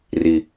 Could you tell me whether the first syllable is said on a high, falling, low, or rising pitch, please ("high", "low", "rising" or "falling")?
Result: low